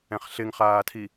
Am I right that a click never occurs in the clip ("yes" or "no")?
yes